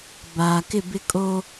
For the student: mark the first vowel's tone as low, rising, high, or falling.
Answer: low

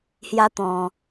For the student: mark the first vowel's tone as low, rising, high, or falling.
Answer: high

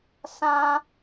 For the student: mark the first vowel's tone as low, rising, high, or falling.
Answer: high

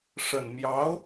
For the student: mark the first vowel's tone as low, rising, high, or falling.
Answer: low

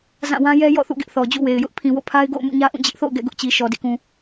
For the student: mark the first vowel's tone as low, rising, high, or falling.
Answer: falling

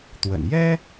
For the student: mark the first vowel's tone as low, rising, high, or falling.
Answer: low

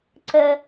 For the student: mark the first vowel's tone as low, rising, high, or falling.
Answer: low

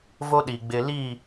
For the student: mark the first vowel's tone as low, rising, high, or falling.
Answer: high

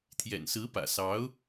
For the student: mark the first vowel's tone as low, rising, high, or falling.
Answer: low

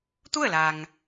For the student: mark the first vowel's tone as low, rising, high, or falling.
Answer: falling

